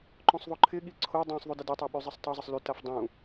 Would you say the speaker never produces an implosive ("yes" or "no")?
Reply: no